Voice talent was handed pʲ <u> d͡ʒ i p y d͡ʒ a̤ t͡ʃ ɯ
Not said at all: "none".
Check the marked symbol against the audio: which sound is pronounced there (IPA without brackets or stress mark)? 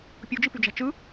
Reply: u